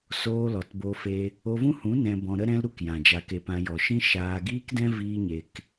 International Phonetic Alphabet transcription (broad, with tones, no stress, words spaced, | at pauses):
soː˧lɔ˨t bo˦fe˦ | o˧vũ˦hũ˨˦ nɛ̃˧bɔ̃˧ɾə˦ ɾɛ̃˦lɾu˦kjã˨ d͡ʒa˧ke˧pã˧ jɔ˨ʃĩ˦ ʃaː˧ ɡiː˦kdɛ̃˦ viː˦ɲe˧k